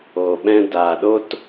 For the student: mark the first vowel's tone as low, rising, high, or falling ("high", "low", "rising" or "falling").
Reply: low